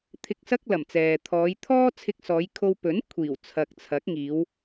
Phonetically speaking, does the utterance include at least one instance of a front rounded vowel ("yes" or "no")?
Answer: no